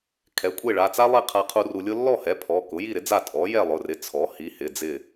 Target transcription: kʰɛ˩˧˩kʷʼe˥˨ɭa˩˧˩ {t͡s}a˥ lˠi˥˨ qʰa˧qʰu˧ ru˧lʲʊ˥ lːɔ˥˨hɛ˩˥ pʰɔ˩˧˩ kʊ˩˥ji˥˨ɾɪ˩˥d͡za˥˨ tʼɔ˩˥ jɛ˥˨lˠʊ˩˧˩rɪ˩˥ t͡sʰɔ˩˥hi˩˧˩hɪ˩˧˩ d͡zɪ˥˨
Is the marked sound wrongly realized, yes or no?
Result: no